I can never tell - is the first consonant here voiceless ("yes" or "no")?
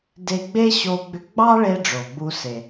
no